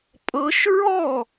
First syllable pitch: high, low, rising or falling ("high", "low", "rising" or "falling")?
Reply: rising